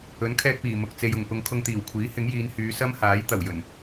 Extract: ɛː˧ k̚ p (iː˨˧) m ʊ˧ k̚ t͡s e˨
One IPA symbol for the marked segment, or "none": iː˨˩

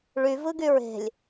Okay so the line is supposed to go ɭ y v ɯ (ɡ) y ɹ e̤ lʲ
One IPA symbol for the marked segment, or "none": ɡ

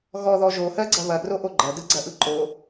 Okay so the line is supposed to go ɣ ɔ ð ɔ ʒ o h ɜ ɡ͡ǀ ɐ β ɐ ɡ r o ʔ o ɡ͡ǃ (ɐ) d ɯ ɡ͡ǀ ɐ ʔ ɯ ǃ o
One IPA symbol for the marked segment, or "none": ɐ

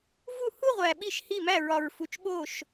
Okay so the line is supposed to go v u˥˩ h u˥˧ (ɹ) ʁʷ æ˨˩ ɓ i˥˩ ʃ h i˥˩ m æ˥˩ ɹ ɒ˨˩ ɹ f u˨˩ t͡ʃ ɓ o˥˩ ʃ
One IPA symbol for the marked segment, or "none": none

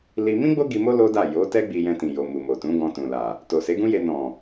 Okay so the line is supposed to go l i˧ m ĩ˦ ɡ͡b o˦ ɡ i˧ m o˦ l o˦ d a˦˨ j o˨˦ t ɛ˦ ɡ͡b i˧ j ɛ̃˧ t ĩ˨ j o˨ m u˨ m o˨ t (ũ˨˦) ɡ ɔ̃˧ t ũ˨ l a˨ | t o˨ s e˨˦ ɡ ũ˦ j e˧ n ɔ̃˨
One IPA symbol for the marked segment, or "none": ũ˨˦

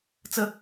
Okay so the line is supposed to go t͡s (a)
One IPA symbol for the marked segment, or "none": ə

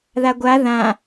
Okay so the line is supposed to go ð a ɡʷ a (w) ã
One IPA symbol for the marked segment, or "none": ð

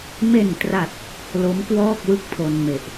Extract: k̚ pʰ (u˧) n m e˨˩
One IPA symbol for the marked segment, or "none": o˧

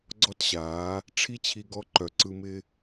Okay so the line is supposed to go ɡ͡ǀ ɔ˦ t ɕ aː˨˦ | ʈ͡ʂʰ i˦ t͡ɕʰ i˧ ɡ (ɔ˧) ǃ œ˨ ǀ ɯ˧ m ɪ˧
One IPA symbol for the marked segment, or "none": ɔ˧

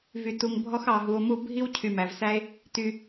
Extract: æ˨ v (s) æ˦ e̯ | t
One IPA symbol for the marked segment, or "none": s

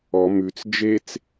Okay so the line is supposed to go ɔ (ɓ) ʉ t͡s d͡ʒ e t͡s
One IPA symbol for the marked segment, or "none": m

